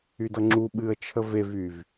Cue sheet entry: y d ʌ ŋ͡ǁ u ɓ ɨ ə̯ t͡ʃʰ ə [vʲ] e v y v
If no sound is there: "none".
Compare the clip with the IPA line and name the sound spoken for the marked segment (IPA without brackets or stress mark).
v